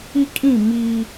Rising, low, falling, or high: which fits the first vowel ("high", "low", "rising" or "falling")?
high